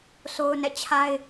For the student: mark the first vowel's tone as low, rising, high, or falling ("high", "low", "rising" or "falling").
high